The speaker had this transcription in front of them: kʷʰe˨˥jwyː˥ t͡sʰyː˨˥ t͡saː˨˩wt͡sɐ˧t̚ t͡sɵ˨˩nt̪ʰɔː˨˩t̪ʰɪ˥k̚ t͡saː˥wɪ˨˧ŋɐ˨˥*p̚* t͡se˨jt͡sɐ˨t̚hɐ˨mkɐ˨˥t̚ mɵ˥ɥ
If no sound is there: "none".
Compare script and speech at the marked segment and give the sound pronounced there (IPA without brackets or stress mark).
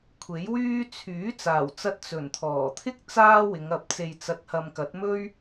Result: p̚